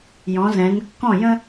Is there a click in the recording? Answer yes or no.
no